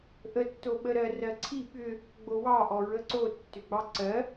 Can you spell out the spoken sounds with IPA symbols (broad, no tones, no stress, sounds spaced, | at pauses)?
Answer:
ʔ ə tː o ɓ ə ɾ ɜ r ɜ ǀʰ i ɓ ʏ | ɡ͡b o w ɑ ʔ ɔ ɹ ə ǀ o tː ʏ ɡ͡b ɑ ǀ ɜ